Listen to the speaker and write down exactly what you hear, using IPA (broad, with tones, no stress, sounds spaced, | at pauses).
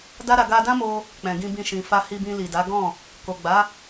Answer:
d a˦ ɾ a˧ ɡ a˧ d ã˦ m o˧ | k͡p ɛ̃˨ ɡ ĩ˧ b ĩ˧ ʃ ĩ˨ f a˧ h i˧ b ĩ˧ l i˨ d a˨˦ ɡ ɔ̃˦˨ | k o˨ ɡ͡b a˨˦